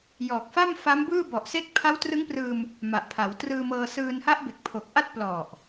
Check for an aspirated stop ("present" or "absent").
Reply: present